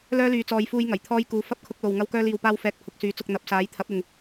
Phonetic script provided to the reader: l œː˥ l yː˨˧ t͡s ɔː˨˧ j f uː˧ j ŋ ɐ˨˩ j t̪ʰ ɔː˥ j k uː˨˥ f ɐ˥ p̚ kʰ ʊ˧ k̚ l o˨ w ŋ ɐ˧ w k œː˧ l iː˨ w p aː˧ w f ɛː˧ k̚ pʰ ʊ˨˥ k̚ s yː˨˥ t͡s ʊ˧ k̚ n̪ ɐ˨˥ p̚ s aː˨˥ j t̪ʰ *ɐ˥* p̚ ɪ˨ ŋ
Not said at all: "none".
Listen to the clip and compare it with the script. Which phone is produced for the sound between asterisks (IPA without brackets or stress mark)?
ɐ˨˥